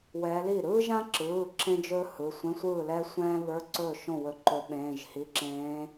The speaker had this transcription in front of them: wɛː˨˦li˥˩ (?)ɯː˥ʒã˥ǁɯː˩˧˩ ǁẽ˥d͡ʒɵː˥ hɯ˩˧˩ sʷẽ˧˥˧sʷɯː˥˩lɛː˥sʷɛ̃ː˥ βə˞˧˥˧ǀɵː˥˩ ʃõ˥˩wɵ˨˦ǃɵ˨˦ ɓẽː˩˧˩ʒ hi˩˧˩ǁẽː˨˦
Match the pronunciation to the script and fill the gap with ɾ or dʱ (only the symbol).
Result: ɾ